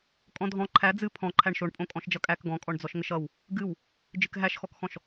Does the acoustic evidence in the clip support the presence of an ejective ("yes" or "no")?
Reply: yes